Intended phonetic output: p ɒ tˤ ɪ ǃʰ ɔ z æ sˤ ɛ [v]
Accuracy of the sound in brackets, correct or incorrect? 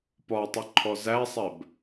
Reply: incorrect